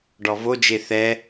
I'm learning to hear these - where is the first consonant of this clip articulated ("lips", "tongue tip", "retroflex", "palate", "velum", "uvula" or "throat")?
retroflex